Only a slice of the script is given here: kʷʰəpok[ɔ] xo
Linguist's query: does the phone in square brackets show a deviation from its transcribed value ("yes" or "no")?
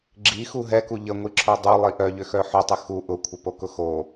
yes